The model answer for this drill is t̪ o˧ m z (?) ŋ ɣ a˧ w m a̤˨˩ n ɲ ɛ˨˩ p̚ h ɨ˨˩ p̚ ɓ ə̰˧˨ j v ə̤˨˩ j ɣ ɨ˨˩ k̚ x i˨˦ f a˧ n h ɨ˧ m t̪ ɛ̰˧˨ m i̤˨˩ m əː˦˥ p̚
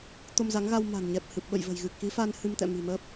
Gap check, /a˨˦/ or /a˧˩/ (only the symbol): a˨˦